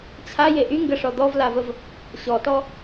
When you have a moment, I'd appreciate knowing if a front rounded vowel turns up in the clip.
yes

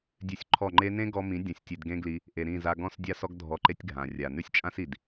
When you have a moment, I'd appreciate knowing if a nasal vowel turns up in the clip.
yes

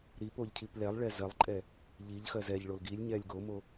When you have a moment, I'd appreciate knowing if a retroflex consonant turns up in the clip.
yes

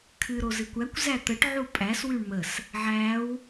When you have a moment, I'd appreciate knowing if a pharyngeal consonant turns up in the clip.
yes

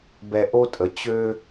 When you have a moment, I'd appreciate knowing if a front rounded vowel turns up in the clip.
yes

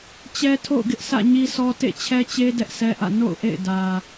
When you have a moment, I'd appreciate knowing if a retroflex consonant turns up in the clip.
no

